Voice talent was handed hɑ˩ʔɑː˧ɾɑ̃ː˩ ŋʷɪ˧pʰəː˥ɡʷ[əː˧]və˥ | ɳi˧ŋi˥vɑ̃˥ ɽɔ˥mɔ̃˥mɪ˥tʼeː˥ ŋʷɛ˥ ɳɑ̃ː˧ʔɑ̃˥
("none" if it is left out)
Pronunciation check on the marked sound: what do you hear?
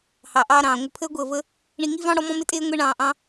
əː˧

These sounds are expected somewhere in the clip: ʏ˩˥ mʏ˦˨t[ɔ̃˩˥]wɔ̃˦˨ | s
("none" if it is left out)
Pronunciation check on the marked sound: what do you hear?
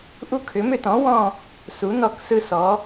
ɔ̃˩˥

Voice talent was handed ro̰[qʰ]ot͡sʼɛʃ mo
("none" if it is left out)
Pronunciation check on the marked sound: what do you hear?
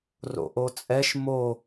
ʔ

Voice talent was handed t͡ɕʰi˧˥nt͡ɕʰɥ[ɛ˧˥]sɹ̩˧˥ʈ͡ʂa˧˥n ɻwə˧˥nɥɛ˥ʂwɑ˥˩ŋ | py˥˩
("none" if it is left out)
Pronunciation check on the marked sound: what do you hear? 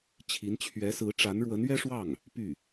ɛ˧˥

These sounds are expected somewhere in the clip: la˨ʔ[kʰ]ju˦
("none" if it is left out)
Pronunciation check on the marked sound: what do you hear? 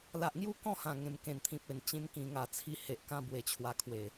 ŋ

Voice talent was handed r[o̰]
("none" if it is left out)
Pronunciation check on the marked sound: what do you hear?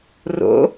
o̰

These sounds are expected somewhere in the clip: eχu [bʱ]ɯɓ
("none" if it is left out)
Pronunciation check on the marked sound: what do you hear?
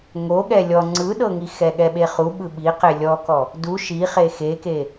ɓ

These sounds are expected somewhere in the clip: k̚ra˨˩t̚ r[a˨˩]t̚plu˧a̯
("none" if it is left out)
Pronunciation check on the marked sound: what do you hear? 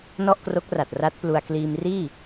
a˦˥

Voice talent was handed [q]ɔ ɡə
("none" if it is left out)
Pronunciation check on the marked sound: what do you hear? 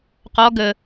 q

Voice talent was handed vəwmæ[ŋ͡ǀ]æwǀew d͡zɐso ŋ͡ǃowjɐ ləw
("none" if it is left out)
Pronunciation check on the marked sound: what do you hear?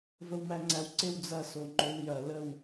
ŋ͡ǀ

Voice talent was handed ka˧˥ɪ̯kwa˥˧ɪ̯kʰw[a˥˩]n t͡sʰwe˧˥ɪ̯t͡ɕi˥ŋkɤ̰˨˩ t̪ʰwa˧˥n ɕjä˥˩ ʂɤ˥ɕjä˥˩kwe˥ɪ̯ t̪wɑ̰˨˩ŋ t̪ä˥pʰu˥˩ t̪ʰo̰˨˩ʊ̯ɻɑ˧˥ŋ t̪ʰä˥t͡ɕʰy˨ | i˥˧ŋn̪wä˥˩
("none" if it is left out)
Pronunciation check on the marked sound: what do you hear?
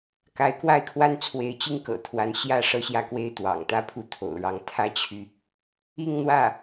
a˥˩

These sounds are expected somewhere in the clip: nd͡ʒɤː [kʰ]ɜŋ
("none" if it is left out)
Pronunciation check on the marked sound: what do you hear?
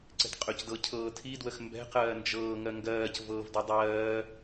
ŋ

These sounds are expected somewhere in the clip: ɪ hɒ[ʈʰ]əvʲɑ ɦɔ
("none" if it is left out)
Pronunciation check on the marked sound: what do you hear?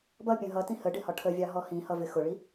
ʈʰ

